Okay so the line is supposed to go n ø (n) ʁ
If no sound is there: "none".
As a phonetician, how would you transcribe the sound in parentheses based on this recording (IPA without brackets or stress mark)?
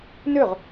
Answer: none